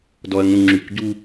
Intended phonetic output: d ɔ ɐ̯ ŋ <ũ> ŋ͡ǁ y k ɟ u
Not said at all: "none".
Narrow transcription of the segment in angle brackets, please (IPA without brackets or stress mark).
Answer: ũ